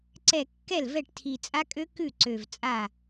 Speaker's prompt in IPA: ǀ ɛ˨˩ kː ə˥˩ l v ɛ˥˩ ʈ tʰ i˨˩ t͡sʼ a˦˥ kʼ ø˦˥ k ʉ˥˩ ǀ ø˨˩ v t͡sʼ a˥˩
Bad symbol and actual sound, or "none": ə˥˩ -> ɛ˥˩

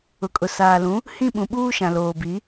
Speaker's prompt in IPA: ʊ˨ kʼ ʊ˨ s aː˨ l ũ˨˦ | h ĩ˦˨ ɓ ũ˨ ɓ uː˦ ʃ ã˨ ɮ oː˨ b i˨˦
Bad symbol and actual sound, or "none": ɮ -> l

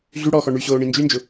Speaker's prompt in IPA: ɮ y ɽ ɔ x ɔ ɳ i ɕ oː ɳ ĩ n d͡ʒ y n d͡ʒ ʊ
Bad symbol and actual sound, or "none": i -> y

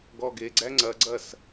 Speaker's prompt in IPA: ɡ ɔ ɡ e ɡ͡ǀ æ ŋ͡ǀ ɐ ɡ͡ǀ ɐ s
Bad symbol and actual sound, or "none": none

